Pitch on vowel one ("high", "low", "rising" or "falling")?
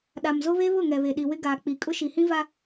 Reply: low